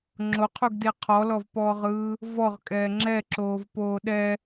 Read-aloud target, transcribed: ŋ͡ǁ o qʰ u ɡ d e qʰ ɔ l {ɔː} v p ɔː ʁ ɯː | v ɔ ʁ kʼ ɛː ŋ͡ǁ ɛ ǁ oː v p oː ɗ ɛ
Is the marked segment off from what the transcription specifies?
yes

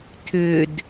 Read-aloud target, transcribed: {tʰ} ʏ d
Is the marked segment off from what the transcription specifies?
no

